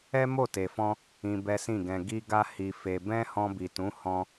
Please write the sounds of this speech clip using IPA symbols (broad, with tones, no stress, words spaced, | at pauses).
ɛ˦mo˦˨te˨fɔ̃˧ | ĩ˧bɛ˦sĩ˦˨ɡɛ̃˧ ɡi˧ɡa˧ hi˧fe˧ bɛ̃˦hɔ̃˧bi˨tũ˨˦ hɔ̃˦